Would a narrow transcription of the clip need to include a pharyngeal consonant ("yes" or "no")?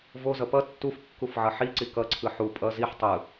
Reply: yes